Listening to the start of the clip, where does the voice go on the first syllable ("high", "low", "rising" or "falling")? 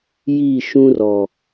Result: falling